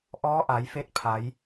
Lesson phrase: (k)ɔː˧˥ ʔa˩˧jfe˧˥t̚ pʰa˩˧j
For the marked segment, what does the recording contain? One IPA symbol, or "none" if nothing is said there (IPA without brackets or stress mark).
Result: ʔ